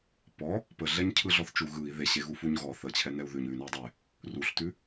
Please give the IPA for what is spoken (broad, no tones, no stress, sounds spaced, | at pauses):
p ɔ | p ə ɮ ɛ ɲ cʰ ɯ ɮ ɔ θ t͡ʃ u ɣ ɯ i̯ ð e ɕ e ɣ u f u ɲ ɣ ɔ θ ə t͡ɕʰ ɛ n ɛ u̯ ð ʉ ɲ ʉ n ɛ u̯ dˤ e | r u ɬ t ʉ